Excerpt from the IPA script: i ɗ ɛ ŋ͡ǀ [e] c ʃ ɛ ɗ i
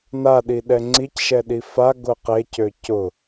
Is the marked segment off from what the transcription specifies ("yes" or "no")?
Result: yes